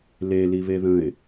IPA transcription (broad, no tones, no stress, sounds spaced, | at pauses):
l e l i β e ð ə̃ ɪ̯